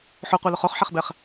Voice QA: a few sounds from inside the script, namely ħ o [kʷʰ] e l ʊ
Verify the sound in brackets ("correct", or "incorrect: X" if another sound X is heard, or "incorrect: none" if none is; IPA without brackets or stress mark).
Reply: incorrect: qʷ